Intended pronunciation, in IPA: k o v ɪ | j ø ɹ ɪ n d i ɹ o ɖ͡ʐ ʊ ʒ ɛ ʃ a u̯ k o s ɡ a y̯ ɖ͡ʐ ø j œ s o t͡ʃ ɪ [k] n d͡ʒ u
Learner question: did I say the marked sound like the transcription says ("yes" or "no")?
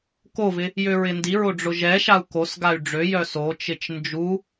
no